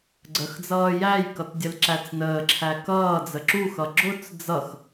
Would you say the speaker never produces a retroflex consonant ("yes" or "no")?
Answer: yes